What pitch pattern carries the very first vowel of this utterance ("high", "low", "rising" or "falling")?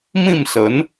falling